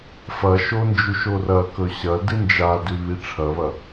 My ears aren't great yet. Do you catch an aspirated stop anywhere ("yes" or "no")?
yes